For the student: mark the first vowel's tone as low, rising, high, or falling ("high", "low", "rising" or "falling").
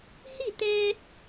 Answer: falling